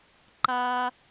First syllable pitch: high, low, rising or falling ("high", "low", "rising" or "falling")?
high